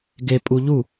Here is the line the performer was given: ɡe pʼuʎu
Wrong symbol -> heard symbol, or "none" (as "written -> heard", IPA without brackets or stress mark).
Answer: none